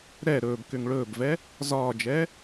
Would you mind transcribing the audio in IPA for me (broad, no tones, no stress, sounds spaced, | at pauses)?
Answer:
ɾ ɛ ɾ ɵː b k ʏ ŋ ɭ ɵː b v ɛ | z ɒː d͡ʒ ɛː